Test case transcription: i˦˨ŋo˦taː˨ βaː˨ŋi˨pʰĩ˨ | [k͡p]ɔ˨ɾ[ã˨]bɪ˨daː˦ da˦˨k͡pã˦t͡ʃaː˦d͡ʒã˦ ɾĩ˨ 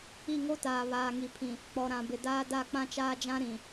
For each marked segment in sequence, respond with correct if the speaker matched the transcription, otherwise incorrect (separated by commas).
correct, correct